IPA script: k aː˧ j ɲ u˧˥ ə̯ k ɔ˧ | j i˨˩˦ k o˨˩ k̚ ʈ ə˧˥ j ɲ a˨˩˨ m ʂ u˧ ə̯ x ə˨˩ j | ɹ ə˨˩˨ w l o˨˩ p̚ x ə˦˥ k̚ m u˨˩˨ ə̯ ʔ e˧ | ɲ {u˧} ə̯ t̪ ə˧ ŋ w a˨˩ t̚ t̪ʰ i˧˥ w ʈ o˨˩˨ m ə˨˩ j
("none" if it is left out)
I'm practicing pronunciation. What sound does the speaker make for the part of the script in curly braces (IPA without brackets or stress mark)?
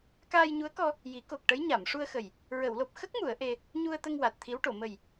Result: u˧